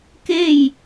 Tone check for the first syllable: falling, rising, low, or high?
falling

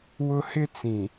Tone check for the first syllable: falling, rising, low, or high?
high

